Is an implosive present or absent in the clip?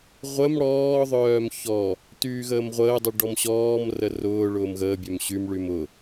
absent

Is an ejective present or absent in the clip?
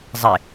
absent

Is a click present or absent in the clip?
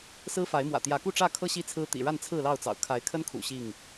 absent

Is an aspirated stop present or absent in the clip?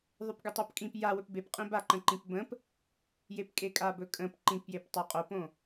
absent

